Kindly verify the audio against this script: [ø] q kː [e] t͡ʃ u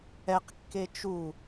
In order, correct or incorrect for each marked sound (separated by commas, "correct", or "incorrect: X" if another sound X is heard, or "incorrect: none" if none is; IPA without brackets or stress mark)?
incorrect: ɛ, correct